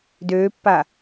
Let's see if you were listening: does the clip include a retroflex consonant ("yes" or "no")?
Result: no